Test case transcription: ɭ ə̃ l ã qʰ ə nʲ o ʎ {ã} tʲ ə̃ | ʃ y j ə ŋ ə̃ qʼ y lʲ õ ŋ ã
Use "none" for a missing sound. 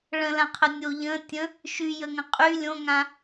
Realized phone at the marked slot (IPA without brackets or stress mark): ə̃